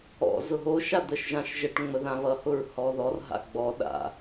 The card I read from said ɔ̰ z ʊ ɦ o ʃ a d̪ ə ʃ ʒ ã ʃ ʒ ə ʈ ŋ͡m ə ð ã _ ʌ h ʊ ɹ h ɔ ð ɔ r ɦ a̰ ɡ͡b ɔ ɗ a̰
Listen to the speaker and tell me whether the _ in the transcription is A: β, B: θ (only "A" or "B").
A